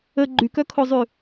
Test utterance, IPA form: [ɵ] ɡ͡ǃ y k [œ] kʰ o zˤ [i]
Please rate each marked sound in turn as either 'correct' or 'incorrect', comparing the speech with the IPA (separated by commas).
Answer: incorrect, correct, incorrect